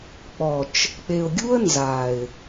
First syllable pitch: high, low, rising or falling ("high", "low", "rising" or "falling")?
low